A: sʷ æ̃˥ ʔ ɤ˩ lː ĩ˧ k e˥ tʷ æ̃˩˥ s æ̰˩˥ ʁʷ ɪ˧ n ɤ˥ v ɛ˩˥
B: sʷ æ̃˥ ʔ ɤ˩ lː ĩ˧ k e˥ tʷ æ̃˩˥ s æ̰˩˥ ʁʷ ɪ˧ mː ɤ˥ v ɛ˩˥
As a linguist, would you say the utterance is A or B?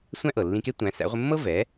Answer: B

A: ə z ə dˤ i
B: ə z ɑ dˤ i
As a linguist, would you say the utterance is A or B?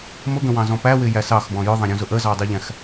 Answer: B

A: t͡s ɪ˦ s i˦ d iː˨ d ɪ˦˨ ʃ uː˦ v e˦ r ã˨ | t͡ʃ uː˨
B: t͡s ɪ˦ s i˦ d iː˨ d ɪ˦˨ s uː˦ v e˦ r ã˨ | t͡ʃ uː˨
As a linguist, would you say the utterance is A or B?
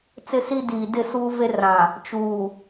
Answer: B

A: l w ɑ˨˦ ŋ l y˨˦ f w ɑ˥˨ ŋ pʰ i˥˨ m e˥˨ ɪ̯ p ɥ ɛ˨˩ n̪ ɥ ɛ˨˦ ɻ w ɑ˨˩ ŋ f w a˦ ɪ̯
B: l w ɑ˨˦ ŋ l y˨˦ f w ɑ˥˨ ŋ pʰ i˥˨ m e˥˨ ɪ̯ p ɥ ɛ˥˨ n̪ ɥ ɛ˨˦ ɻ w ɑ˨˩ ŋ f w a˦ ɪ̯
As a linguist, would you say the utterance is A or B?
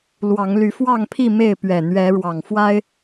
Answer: A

